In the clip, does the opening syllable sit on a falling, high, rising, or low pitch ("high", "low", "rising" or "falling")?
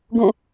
falling